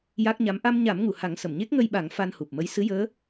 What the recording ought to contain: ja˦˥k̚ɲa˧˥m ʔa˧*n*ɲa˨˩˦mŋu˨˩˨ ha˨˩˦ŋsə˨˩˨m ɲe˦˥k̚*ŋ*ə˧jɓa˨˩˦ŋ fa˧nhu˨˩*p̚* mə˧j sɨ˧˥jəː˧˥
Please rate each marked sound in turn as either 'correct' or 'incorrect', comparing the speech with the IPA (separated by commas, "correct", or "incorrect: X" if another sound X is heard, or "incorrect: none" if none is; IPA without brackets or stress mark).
incorrect: m, correct, correct